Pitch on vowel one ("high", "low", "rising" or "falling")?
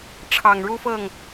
low